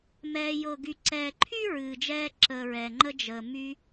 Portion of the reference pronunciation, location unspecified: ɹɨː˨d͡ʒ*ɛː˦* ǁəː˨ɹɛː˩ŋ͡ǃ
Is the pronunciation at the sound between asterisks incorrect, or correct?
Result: incorrect